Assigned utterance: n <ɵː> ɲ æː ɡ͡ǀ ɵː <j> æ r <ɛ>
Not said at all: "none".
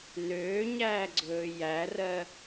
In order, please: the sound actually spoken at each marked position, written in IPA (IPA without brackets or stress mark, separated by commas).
øː, j, ɜ